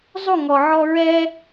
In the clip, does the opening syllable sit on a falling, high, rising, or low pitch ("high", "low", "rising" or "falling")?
falling